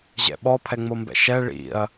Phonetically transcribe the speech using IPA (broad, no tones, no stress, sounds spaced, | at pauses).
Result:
ʑ ɛ̰ ɓ ɔ pʰ ɛ ŋ͡m o m b ɛ̰ ʃ ɛ ɭ ḭ ɐ̯